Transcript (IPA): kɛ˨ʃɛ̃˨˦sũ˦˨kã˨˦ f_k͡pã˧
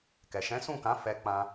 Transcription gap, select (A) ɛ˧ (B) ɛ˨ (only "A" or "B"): A